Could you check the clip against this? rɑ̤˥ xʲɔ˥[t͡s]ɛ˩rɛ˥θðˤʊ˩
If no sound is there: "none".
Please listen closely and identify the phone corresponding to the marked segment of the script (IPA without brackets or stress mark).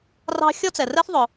t͡s